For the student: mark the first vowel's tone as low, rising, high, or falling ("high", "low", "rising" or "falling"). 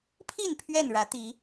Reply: falling